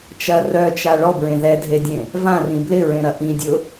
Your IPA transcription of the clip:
t͡ʃ ɐ r œ t͡ʃ a ɭ ɔ b ɹ ẽ ð ɛ dʱ e dʲ ẽ | v ã r ĩ b l ɪ ɹ ẽ ɾ ɐ ʔ ĩ dʲ ʊ

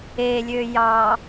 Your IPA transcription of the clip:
e lʲ ø j ɑ

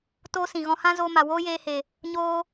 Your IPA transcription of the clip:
t oː˦ s ĩ˨ ɣ ɔ̃˧ h ã˦ z oː˧ m a˨ w oː˦ j eː˧ h e˨ | ɲ oː˦

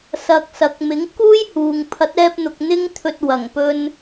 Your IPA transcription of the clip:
s ɐ˧ k̚ s ɐ˨˥ k̚ m ɪ˨˥ ŋ k uː˥ j h uː˨ ŋ pʰ ɐ˨˥ t̚ ɛː˧ p̚ n̪ ʊ˨ k̚ n̪ ɪ˧ ŋ t̪ʰ ɵ˨ t̚ w ɐ˨˩ ŋ p ɵ˧ n

